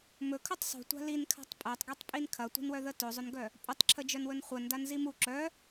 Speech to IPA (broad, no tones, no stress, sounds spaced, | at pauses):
m ɵ kʰ ɵ tˤ sˤ ṳ tʷ a̤ l i n kʰ a̤ tˤ pʼ ɜ tˤ ɡ i tˤ pʼ i n kʰ ɐ tʷ i̤ n w œ ð ə t ɵ zˤ ɵ n ɡ œ | pʼ ɵ tˤ ǁʰ ə d͡ʒ œ n w ɵ n χʷ ɜ n d a n z i m u ǁ œ